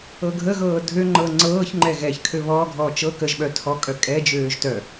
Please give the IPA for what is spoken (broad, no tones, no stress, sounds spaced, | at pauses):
ɤ ɡʱ ə ɣ ɤː dʱ ø ŋ͡ǃ ɤ ŋ͡ǀ ɤː ç ŋ͡ǃ ɛ ɣ ɛ ç kʰ ø β ɔ ɡʱ ɔː t͡ʃ ɤ k ə ʒ ɓ œ tʰ ɔ kʼ œ kʼ ɛ d͡ʒ øː ʒ t œ